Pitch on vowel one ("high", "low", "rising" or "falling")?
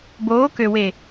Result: rising